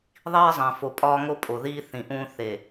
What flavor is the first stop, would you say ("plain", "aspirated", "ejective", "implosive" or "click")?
ejective